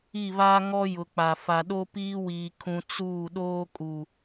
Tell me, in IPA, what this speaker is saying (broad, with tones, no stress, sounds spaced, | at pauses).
i˦˨ β aː˦ ŋ ɔ˦ j ʊ˨ k͡p a˨ f a˨ ɗ o˦ p iː˦ w iː˨ kʰ ũ˨ t͡s uː˦˨ ɗ oː˦ kʼ u˨